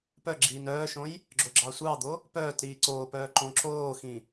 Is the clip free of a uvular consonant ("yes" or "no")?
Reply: yes